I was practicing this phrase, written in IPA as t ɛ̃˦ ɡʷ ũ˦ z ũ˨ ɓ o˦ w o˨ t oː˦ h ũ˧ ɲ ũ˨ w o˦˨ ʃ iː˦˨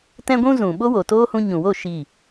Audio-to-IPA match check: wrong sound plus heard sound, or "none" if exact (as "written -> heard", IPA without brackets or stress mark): none